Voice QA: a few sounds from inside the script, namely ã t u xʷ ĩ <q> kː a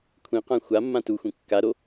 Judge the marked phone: incorrect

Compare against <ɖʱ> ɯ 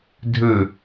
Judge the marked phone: incorrect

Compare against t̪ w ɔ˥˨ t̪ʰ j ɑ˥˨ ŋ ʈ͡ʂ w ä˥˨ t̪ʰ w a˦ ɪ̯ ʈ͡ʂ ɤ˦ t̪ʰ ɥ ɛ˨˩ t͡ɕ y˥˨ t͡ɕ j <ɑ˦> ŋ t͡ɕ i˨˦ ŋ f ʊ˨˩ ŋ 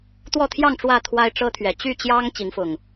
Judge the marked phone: correct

